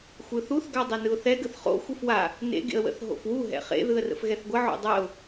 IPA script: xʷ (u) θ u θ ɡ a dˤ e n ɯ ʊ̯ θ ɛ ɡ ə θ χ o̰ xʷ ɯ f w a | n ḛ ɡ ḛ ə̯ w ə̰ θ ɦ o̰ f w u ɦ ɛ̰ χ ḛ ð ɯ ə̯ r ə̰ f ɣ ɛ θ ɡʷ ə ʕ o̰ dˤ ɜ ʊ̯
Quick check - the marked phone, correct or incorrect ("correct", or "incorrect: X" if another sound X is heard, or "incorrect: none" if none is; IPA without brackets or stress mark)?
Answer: incorrect: ɯ